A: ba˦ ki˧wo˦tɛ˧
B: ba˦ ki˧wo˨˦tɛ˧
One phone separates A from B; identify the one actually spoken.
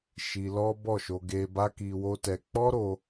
A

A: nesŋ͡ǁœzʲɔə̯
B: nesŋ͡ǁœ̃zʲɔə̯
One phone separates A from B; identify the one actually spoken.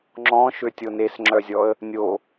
A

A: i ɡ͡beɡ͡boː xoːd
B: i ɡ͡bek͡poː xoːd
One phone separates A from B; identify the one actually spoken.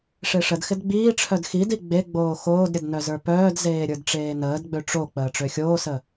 A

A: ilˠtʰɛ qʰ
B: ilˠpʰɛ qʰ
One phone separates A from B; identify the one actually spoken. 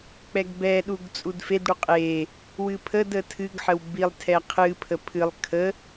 A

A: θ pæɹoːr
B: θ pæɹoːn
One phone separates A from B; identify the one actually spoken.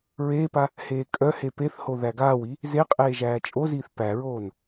B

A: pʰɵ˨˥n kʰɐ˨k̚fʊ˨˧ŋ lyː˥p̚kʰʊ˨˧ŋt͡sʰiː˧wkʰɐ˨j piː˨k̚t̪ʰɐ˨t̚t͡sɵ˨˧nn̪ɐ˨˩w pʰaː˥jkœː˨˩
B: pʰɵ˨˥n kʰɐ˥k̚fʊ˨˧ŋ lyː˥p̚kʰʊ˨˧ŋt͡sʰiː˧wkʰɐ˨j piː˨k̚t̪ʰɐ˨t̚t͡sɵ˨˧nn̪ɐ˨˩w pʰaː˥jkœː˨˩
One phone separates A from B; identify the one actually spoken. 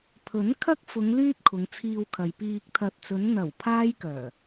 B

